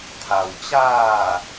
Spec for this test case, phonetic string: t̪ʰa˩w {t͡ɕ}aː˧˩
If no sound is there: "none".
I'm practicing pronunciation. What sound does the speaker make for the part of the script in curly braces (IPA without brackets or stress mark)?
t͡ɕ